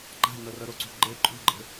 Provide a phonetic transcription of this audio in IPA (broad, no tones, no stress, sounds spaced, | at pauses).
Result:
ɡ͡ǃ a̤ n ɤ r ɤ ɾ o ǀ ṳ ɡ͡ǃ e ǃʼ ṳ ɡ͡ǃ e̤